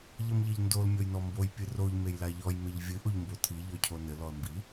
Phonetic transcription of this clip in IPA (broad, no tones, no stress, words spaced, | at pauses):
ʎɐmʎɐʎndol mʲojnɔmboj pʲɨroʎ mejlaʎɔj meʎvʲɨ ʔoʎmbotʰi ʎɔcʰonɘ lɔə̯mbi